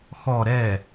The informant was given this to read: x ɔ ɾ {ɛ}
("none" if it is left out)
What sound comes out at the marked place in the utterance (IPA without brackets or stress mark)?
ɛ